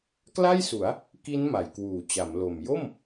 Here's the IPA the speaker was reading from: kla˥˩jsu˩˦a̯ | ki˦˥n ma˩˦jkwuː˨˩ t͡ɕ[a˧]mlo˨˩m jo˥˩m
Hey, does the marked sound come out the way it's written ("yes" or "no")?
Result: no